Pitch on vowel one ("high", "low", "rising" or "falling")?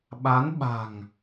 rising